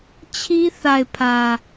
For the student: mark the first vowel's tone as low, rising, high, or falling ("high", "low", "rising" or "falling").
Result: high